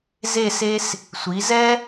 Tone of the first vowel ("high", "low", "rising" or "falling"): falling